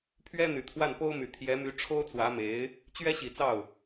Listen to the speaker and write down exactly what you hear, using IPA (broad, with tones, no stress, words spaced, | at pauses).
pʰɥɛ˥ n̪y˨˩t̪ʰwa˥˩npo˥ʊ̯my˨˩ t̪ʰjɛ˧˥my˧˥ ʈ͡ʂʰo˥ʊ̯t͡swä˧˥me˧˥ɪ̯ | t͡ɕɥɛ˥ɕi˨˩t͡sɑ˥˩ʊ̯